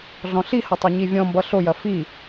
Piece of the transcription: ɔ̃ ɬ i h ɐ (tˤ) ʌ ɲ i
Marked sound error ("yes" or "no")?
no